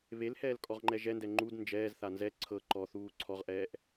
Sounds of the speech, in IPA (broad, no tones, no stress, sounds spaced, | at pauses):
β e l h ɛː l kʼ ɔ ʁ ŋ͡ǃ ɛ ʒ ɛ n d ɛ ŋ͡ǃ u d n d͡ʒ ɛː z θ a n z ɛ ǀʰ ɤ ǃ ɔ θ uː ǀʰ ɔ ʁ ʔ ɛː ʔ